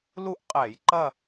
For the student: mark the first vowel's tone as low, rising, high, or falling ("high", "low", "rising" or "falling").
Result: falling